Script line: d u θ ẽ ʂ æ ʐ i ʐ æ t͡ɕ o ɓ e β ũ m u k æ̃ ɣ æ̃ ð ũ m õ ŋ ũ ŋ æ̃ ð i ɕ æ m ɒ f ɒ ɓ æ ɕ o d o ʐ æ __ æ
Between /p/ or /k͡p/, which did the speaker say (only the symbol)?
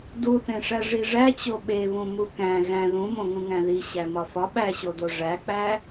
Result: k͡p